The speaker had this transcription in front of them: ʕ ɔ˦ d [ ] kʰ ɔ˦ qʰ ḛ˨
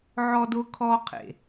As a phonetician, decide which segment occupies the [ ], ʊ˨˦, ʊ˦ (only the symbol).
ʊ˦